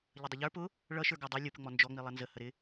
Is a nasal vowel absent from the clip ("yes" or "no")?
yes